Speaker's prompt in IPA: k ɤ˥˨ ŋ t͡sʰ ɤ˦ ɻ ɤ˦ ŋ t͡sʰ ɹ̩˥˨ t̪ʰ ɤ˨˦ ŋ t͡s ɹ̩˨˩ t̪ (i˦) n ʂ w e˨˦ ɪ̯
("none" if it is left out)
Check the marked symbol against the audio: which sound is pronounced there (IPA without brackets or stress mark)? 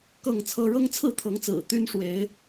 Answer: y˦